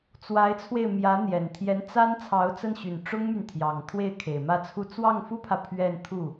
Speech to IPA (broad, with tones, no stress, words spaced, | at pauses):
t͡swa˧˥ɪ̯t͡sʰwe˧ɪ̯ mjä˧˥n̪jɛ˨˩n t̪ʰjɛ˧˥n t͡sa˥n t͡sʰɑ˧˥ʊ̯t͡sə˥˩nɕy˨˩n ʈ͡ʂʊ˥ŋmy˨nt̪ʰjɑ˨˩ŋ t̪ʰwe˥˩ɪ̯kʰe˨˩ɪ̯mä˥˧t͡sʰu˥˧ t͡swɑ˥˩ŋfu˥pʰä˨ pʰɥɛ˥˧nt̪ʰu˥˩